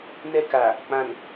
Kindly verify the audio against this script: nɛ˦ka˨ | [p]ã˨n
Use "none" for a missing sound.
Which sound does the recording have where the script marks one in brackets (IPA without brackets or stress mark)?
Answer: k͡p